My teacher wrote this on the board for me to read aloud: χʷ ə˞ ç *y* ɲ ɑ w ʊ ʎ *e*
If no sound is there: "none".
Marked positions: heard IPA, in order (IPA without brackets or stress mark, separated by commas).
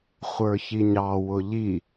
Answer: i, i